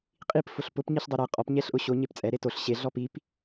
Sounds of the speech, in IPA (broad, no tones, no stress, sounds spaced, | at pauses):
qʼ i p f ʊ ɬ p ʊ p ɲ i ɬ dˤ e ɾ ɛ qʼ ɔ p ɲ ɛ ɬ ʔ ʊ ɕ o ɲ e p t͡sʼ ɛ ɾ e t o ɬ ɕ e ɮ ɔ p i p